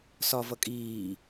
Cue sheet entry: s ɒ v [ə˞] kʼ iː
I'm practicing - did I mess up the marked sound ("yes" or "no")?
yes